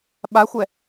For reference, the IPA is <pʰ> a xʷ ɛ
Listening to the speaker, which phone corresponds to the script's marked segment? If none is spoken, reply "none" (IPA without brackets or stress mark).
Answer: ɓ